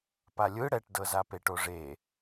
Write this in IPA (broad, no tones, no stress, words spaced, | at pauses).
palʲɯ ɽɛʈdɤzape ʈoʐe